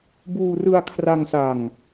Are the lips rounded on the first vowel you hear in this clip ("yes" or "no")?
yes